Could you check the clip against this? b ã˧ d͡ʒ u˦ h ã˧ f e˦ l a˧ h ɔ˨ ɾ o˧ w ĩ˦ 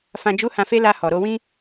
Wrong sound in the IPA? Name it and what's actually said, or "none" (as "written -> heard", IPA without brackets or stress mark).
b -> f